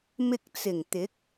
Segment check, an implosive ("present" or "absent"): absent